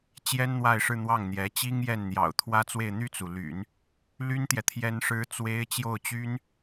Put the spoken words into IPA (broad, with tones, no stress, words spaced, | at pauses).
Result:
t͡ɕjɛ˥nn̪wa˥˧ɪ̯ʂɻ̩˥˧n̪wɑ˥˩ŋ n̪jɛ˧˥t͡ɕi˥ŋjɛ˥˩n n̪jɑ̰˨˩ʊ̯t̪ʰwä˥t͡swe˥˧ɪ̯ n̪y˥˩t͡su˩ly̰˨˩˦n | ly˥nt̪jɛ˨ t̪ʰjɛ˥nʂɻ̩˥t͡swe˥ɪ̯ t͡ɕjo˥˩ʊ̯t͡ɕy˥n